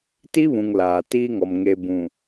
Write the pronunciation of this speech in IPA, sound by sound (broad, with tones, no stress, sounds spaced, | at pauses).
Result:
t i˦ β ũ˨ ŋ l aː˨ t iː˦ ŋ ɔ˨ m ŋ e˨ b ũ˨